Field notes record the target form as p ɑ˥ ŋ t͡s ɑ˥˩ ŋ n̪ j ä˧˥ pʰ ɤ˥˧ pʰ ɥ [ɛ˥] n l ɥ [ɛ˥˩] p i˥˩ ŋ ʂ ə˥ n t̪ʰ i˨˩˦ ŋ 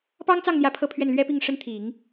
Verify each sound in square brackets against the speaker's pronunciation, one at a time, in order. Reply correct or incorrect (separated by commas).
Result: incorrect, incorrect